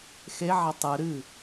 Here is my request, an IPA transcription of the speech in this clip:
x e ʕ a tˤ ɨ ɾ ɨ

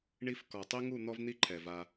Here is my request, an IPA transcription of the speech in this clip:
ɳ i˧ f k ɔ˨ tˤ i˦ ŋ u˦˨ n̪ ɔ˦ v n̪ i˦ ǃʰ ɛ˨ v a˧

